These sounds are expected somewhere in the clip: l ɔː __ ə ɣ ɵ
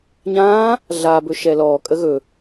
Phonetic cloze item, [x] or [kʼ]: kʼ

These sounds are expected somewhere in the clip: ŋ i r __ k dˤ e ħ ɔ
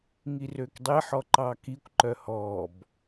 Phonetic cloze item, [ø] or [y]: ø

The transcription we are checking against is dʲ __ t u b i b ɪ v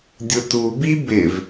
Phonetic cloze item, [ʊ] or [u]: ʊ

